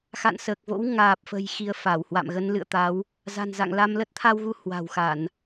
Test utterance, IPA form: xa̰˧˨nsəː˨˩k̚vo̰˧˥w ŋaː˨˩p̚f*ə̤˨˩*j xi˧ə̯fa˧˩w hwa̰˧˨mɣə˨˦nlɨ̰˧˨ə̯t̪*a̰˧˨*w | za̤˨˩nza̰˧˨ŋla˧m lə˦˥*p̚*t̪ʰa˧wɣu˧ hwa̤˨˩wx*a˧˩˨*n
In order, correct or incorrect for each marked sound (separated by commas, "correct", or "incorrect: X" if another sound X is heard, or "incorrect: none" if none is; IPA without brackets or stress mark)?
correct, incorrect: a˨˦, incorrect: t̚, correct